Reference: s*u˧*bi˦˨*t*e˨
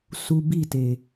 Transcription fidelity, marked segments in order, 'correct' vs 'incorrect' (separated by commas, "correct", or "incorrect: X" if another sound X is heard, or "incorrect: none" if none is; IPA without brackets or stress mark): correct, correct